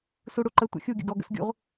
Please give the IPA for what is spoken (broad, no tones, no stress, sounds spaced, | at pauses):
s u ɽ u ǃ ə tʷ ə̰ xʲ u ɡʲ ə̰ ɡ ɔ ɡ ə̰ s ɡʲ ṵ ʁ